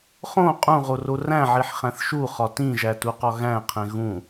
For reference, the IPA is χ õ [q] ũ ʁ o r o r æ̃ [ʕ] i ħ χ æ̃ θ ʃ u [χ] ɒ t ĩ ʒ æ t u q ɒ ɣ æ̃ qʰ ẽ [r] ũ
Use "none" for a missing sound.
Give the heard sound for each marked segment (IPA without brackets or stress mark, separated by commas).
qʼ, ʕ, χ, ɣ